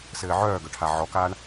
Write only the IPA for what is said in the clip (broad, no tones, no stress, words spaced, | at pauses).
sɘːʕœːɡœʈʰa ʕɔkaːɳ